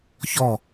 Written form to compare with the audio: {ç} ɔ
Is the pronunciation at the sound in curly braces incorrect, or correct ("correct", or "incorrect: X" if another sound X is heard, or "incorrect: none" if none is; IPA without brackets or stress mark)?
correct